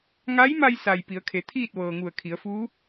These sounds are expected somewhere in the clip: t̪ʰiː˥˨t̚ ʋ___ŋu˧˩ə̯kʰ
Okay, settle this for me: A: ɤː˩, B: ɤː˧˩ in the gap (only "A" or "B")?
A